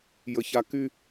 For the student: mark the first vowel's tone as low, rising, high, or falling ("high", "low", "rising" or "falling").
high